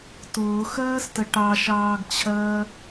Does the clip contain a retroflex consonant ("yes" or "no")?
yes